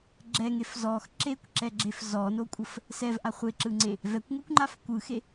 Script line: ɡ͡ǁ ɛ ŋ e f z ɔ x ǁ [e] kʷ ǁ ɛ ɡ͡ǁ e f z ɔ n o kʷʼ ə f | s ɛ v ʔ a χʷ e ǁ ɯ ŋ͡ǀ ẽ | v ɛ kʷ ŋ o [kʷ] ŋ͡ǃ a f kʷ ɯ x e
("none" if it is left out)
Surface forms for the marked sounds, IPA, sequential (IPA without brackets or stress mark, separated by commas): e, kʷ